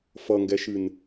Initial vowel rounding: unrounded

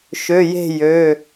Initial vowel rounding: rounded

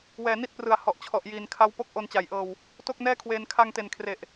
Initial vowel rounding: unrounded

